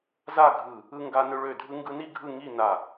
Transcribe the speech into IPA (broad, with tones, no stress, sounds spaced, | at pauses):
z a˥˧ ɡʱ ɯ˧˩ | ɯ˧ ŋ ɡ a˧ n ø˧ ɭ ø˧˩ dʱ ɯ˧ ŋ ɡ ɯ˧ n i˥˧ ɡʱ ɯ˥˧ ŋ i˥˧ n a˧˩